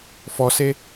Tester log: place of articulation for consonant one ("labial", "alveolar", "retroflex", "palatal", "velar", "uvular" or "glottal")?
labial